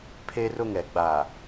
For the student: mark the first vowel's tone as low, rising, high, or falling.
high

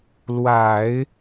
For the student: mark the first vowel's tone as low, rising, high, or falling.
low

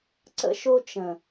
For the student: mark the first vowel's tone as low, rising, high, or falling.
high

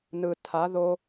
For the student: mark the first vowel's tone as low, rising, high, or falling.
low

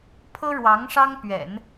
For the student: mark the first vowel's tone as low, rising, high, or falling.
high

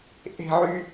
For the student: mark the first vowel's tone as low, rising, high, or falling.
high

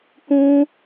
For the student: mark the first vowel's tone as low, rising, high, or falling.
high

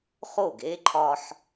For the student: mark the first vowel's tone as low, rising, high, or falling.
falling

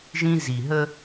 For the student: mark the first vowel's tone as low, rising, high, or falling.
high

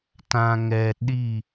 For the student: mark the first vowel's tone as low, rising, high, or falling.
low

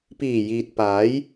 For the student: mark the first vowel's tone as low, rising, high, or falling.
low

